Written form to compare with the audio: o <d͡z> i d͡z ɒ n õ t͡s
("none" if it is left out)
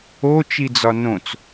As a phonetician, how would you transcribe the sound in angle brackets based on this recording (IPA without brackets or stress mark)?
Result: t͡ʃ